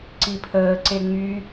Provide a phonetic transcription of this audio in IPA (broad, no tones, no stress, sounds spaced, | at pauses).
ǀ i pʰ əː ǀ e ŋ͡m y